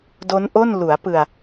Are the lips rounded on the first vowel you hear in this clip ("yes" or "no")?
yes